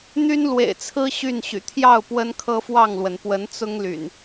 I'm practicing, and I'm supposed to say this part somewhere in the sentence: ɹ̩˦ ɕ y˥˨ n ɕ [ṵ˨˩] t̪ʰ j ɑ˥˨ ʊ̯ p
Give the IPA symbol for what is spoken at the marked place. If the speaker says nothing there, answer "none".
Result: y̰˨˩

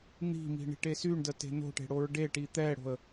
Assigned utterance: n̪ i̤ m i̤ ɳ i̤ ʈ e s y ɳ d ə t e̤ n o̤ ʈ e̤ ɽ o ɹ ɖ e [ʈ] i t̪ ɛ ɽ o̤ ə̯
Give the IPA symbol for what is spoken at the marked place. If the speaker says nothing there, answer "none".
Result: ʈ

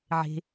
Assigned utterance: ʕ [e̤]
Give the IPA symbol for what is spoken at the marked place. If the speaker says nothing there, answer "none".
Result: e̤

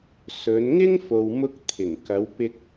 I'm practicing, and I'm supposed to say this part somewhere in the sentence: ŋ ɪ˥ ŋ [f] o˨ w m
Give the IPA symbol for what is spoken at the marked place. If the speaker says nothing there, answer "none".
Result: f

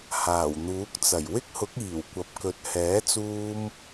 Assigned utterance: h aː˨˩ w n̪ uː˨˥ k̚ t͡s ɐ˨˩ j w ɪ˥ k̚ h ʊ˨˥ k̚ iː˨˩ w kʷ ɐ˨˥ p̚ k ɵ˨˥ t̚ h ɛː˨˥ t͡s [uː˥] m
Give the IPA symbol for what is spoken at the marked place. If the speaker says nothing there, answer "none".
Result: uː˥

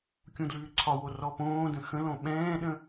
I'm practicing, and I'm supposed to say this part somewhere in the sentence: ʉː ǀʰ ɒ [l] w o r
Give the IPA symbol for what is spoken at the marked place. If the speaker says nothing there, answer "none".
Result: none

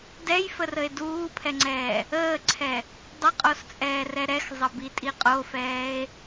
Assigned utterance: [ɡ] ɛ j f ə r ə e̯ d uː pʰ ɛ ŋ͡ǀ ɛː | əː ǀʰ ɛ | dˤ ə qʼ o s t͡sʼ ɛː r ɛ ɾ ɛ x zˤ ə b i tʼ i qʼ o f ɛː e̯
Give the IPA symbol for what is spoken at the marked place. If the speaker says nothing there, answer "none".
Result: d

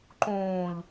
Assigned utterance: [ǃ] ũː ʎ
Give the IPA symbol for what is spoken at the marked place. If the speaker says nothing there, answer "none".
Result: ǃ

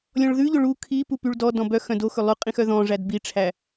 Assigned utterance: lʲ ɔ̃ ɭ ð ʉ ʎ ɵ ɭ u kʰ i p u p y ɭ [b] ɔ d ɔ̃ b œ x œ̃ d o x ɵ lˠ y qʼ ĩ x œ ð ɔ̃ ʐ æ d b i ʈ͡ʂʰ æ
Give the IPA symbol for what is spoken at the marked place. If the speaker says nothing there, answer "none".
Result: d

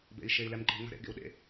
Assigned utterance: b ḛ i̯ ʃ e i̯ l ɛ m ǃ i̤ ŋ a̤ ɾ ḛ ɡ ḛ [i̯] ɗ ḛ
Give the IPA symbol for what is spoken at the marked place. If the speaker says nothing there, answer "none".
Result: u̯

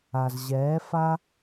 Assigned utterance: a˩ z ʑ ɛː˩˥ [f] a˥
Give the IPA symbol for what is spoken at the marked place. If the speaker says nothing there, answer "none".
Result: f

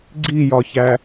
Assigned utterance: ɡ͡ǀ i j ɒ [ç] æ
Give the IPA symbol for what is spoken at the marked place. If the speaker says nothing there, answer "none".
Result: ç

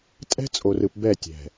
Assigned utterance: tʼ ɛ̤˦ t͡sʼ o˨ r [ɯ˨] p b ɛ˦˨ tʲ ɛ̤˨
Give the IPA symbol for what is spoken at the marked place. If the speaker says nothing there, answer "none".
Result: ɯ˨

